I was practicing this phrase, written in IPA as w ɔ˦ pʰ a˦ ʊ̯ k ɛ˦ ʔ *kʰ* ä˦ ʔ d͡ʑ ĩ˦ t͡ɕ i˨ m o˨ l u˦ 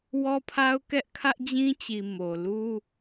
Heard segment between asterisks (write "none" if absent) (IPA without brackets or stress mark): kʰ